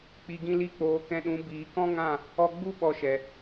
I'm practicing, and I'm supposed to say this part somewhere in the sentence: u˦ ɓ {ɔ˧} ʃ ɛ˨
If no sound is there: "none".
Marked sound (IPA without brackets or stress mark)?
ɔ˧